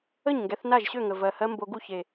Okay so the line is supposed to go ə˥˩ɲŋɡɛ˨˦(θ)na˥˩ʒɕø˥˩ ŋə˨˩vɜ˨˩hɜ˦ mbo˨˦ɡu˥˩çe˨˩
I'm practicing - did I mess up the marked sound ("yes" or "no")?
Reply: no